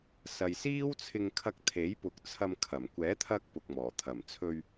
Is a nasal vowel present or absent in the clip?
absent